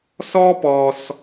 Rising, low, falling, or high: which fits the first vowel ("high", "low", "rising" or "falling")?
high